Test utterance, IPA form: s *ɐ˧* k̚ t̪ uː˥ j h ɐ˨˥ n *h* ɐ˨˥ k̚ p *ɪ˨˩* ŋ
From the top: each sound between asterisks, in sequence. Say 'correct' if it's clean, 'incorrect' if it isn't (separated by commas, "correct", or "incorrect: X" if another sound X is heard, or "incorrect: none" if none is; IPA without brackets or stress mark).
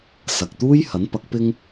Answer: incorrect: ɐ˨, incorrect: p, incorrect: ɪ˥